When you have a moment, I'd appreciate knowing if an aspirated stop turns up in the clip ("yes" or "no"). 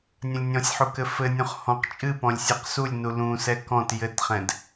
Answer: no